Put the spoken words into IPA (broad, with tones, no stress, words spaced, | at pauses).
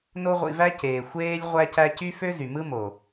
no˦ʁʷḭ˧væ˦ ceː˨ xʷeː˦lʲ ʁʷæ˦cæ˦ cy˦fø˦zy˨ mɯ˦mo˨